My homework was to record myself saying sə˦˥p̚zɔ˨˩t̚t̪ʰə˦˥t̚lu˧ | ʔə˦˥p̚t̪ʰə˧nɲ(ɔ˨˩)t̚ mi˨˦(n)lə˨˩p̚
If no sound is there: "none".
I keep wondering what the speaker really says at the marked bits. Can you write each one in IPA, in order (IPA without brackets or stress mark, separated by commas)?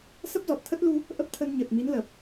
ə˨˩, n